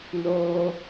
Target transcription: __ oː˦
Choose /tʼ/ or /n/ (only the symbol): n